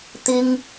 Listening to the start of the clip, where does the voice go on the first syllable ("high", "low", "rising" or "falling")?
high